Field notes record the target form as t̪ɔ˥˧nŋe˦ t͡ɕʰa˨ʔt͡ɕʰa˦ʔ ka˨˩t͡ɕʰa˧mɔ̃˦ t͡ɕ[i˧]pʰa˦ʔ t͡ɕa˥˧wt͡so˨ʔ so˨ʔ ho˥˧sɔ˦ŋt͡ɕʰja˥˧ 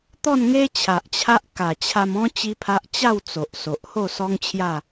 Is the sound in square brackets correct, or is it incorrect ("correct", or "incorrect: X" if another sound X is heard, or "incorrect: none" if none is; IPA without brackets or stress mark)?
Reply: incorrect: i˦